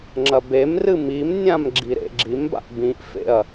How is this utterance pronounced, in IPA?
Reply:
ŋ͡ǁ ɐ b e m r ɨ m i m nʲ ã m ɡ͡ǁ i ɾ ḛ ɡ͡ǁ i m b a̰ ʔ b ĩ ʔ f ḛ ɐ̯

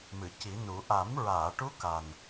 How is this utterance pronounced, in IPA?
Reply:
m ɨ˨˩˨ c i˨˩˦ n u˨˩˦ ʔ a˨˩˦ m ɹ aː˨˩˨ ʈ u˧˥ k a˨˩ n

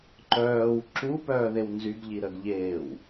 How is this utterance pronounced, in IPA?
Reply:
ǃ œː w ǁ u p œː ð e w n z y ɡ ʎ i ɾ ə ɡ ʎ eː w

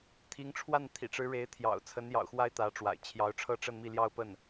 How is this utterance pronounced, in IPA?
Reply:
t̪ʰ i˧˥ ŋ ʈ͡ʂʰ w a˥˩ n t̪ʰ ḭ˨˩ ʈ͡ʂ ɻ̩˧˥ ɻ e˧˥ ɪ̯ t̪ʰ j ɑ̰˨˩ ʊ̯ t͡sʰ ə˧˥ n j ɑ̰˨˩ ʊ̯ x w a˥ ɪ̯ t̪ ä˧˥ ʈ͡ʂ w a̰˨˩ ɪ̯ t͡ɕʰ j ɑ˧˥ ʊ̯ ʈ͡ʂʰ ɤ˥˧ ʈ͡ʂ ə˥˧ n m i˥˧ l j ɑ˥˧ ʊ̯ p ə˥˩ n

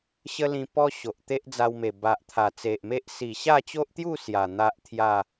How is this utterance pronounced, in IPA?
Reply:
ɕ ə˦ l ĩ˧ p ɔ˦ ɕ o˨ ʔ t̪ e˦ ʔ d͡z a˧ w m e˨˩ b a˨ ʔ t̪ʰ a˨˩ t͡s e˨ ʔ m e˦ ʔ s i˨˩ ɕ a˥˧ t͡ɕ o˦ ʔ t̪ j u˥˧ s j a˨˩ n̪ a˦ ʔ t̪ʰ j a˥˧

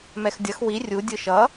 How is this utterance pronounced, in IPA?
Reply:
m ɛ x dʲ ʌ x w i rʲ u dʲ ɯ ʃ ʌ

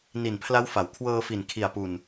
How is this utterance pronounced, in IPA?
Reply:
n i˨˩ n pʰ l a˦˥ w f a˩˦ w kʰ w ɤː˧ f i˨˩ n kʰ i˨˩ a̯ p u˨˩ n

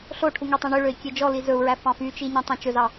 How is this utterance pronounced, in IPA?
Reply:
ɬ o ʈʰ u ŋ ø tˤ ẽ ɳ ø ɭ ø i̯ kʲ e d͡ʒ ɔ l i z ɵ u̯ ɹ æ f ɑ̃ f y t͡ʃ i ɲ ẽ tˤ ẽ t͡ʃ ɵ z ɑ

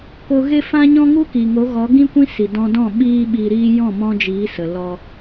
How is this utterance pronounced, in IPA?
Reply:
k o˧ ɣ e˦ f ã˦ ɲ ɔ̃˦ ŋ u˦ k i˨ ŋ o˨˦ ɣ ɔ˨˦ ɡ ĩ˦ kʷ ĩ˦ s i˨ d ɔ̃˧ d ɔ̃˦˨ ɓ iː˧ ɓ iː˧ ɾ iː˦ j ɔ̃˦˨ m ɔ̃˧ d͡ʒ iː˨˦ s ə˨ l ɔ˧

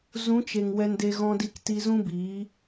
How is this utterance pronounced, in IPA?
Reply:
z ũ˨˦ t͡ʃ e˨ ŋ w ɛ˧ n d e˧ ɣ ɔ̃˧ d i˧ k t i˧ z ũ˦ b iː˨˦

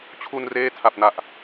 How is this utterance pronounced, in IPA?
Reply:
t͡ɕʰ u˧ n r eː˦˥ tʰ a˨˩ p̚ n a˨˩ ʔ

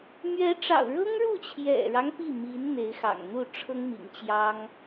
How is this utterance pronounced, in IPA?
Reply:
m ɥ ɛ˧˥ ʈ͡ʂ ɑ̰˨˩ ʊ̯ ɻ ɤ˥ ŋ ɻ u˥˩ t͡ɕʰ j ɛ̰˨˩ ɻ ɑ˦ ŋ p i˥˩ m i˧˥ n n̪ e˧˥ ɪ̯ x ɑ̰˨˩ ŋ n̪ u˥˩ ʈ͡ʂʰ ɤ˥ ŋ m ḭ˨˩ ŋ t͡ɕ j ɑ˥ ŋ

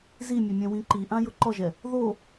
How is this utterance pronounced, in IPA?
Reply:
z i mʲ ɛ mʲ ɛ̃ w ĩ ǃ i ʔ ã j ʊ ǃ ɔ ʒ ɛ | ð o

